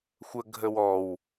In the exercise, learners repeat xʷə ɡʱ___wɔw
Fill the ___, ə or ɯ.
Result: ə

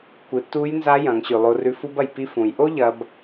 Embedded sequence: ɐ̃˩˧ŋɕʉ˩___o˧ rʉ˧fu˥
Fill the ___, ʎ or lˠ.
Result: lˠ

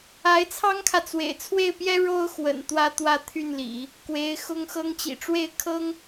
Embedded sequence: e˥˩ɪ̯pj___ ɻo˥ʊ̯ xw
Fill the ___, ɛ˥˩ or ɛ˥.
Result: ɛ˥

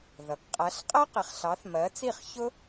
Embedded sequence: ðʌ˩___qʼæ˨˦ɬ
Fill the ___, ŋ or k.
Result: k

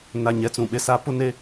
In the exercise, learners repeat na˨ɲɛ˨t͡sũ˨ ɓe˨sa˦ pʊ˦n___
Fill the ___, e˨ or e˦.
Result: e˦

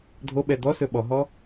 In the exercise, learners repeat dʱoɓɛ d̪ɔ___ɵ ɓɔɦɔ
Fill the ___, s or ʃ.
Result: s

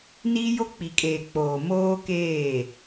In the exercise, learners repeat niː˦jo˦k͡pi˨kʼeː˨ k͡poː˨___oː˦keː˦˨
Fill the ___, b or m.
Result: m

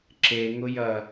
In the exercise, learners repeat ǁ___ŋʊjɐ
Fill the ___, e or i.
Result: e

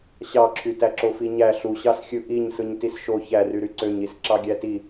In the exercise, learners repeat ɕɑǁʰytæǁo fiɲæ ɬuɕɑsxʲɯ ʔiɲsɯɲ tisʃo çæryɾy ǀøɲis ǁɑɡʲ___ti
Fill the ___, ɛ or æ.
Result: æ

